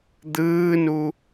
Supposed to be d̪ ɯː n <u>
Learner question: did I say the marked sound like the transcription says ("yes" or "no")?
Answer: yes